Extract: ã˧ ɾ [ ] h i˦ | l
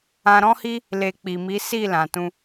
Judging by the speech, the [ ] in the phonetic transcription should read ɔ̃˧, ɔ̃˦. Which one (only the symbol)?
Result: ɔ̃˦